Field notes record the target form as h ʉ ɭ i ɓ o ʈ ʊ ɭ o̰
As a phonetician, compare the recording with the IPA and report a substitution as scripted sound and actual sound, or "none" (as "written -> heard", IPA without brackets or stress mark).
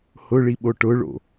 ʉ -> ʊ